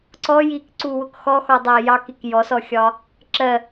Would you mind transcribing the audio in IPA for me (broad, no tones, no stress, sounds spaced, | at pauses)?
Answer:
ǀ ɔ j i k ǀ u w ʊ k x ɔ x ɔ dˤ æ j ɑ k i k j ɔ s ɔ xʲ ɒ | ǁ ɜ